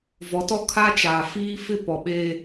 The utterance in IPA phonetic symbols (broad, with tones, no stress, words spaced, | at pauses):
vɔ˨˦tɔ˦ kʰa˦t͡ʃaː˨ fiː˦fɪ˦ pɔ˨ɓe˦